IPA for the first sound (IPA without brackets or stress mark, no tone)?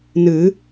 n